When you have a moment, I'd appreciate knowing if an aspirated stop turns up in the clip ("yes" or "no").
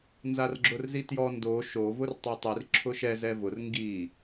yes